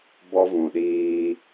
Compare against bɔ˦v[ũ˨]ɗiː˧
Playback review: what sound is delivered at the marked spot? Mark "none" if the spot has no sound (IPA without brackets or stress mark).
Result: ũ˨